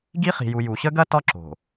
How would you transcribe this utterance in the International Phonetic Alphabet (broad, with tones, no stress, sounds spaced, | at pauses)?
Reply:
ɡ i˦ χ i̤˨ j u˨ j u˨ ɕ ə˦ ɡ ɐ˦ t ɒ˦ ǁ o̤˨